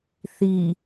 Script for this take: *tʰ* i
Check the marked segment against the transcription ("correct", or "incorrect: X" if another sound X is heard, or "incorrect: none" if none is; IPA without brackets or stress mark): incorrect: θ